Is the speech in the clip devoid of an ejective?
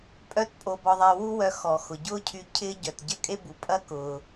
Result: no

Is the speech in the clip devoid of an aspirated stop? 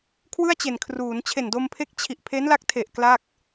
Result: no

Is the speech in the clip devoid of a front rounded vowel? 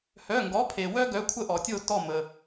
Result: no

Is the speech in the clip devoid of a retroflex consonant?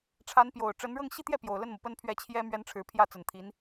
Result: no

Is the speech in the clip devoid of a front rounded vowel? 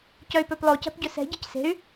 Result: no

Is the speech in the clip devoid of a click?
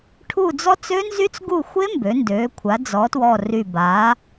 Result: yes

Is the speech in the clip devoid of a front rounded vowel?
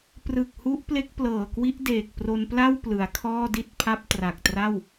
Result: yes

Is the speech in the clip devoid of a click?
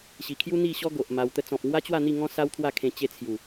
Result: yes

